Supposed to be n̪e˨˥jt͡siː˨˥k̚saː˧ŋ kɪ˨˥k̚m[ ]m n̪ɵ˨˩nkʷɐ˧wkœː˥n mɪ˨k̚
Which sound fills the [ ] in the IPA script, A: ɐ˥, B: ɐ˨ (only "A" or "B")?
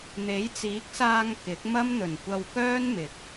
A